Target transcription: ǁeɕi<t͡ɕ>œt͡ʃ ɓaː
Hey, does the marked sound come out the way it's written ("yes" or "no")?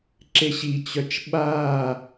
yes